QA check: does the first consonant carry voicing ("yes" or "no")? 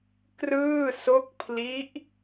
no